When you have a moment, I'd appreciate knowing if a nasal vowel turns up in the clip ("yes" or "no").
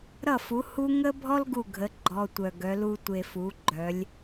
no